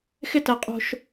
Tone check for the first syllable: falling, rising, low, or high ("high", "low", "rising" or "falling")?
high